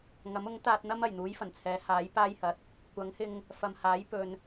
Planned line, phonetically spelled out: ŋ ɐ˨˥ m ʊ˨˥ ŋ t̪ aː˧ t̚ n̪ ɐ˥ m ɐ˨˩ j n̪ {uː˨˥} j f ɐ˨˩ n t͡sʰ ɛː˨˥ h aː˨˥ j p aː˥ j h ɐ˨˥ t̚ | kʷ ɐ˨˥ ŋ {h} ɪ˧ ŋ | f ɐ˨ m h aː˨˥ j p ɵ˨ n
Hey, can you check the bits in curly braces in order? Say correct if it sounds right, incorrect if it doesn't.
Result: correct, correct

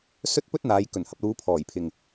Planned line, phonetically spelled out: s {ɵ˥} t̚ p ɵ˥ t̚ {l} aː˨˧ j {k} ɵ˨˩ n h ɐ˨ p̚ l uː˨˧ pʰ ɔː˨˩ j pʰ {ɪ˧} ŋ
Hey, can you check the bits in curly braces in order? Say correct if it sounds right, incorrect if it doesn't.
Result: correct, incorrect, correct, incorrect

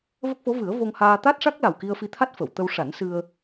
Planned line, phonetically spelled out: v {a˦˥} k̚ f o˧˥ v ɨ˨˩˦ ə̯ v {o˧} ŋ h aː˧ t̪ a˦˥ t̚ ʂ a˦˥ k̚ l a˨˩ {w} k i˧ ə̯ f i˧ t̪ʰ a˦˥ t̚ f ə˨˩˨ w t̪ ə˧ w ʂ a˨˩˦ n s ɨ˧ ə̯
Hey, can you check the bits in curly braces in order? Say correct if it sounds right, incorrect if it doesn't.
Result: incorrect, correct, correct

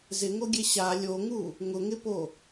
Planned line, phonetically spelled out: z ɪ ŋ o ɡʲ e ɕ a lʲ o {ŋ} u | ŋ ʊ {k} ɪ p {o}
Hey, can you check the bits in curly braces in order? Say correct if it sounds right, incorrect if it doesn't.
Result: correct, incorrect, correct

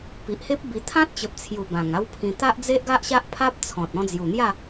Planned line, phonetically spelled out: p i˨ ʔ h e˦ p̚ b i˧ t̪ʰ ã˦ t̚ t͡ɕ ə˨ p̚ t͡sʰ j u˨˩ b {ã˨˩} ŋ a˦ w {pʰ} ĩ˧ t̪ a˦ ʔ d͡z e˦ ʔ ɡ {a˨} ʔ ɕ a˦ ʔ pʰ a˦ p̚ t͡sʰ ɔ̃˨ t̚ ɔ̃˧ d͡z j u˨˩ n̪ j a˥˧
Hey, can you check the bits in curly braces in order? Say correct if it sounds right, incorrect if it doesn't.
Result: correct, correct, incorrect

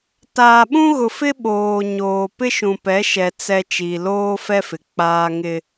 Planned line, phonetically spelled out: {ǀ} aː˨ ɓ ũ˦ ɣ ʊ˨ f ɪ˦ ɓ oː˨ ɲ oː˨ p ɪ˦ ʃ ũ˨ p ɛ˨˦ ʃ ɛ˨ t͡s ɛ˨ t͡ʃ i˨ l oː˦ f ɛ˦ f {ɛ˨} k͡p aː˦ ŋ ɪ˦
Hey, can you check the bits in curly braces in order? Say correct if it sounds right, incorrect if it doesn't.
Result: incorrect, incorrect

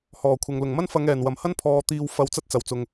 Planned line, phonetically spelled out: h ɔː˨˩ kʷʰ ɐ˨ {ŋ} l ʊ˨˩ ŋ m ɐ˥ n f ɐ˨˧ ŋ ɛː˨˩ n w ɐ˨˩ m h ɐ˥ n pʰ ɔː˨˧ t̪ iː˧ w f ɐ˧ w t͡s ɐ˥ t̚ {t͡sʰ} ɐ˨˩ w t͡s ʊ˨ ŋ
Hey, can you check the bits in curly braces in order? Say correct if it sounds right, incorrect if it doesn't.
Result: correct, incorrect

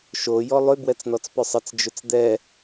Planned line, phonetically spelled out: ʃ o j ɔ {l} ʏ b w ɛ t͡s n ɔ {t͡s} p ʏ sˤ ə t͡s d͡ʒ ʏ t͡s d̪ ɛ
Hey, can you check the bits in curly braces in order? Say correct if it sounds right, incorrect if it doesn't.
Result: incorrect, correct

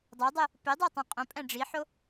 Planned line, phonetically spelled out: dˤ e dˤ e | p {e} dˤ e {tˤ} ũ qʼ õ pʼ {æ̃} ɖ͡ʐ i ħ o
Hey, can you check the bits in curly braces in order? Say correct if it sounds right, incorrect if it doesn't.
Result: correct, correct, correct

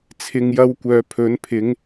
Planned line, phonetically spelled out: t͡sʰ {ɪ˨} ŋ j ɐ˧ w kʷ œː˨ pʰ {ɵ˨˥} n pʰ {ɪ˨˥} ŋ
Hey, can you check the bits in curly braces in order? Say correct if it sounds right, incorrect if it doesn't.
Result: correct, correct, correct

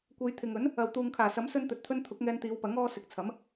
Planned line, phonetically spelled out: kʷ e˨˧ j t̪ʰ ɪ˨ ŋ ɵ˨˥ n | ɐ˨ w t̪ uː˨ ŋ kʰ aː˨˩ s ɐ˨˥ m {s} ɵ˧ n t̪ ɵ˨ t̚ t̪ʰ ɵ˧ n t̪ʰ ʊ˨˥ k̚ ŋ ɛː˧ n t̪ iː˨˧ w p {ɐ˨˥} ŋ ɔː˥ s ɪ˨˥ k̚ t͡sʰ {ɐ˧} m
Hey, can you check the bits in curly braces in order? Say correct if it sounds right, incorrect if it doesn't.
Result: correct, correct, incorrect

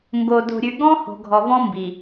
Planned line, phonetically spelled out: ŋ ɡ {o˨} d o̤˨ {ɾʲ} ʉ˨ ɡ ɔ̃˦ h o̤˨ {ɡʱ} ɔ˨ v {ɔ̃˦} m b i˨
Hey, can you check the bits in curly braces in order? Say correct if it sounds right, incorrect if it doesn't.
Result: correct, correct, correct, correct

